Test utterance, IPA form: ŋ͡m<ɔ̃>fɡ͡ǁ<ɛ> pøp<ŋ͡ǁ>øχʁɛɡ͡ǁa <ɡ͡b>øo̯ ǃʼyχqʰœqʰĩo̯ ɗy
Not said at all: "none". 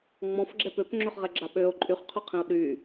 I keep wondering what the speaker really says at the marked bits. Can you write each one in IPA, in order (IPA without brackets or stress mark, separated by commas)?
ɔ̃, ɛ, ŋ͡ǁ, ɓ